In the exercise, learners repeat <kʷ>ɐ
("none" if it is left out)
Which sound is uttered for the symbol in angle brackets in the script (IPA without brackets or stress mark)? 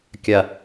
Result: kʲ